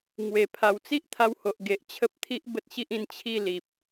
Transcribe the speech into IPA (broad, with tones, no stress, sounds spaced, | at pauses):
ŋ w e˨˩ pʰ a˨˩ w t͡s i˦ ʔ t̪ʰ a˧ w h o˨ ʔ ɡ e˨ ʔ t͡ɕʰ ə˦ p̚ t̪ʰ i˦ ʔ b ə˦ t̚ ɕ i˦ ʔ ĩ˧ n t͡ɕʰ i˥˧ l i˨ p̚